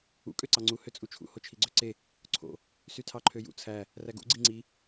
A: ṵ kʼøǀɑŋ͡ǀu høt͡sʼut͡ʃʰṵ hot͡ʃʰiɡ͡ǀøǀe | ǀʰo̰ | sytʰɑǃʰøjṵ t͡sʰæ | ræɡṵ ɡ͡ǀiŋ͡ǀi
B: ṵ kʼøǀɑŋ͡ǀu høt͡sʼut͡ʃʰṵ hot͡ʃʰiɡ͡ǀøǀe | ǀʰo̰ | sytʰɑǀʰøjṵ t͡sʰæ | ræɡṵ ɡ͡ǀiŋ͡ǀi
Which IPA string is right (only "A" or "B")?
A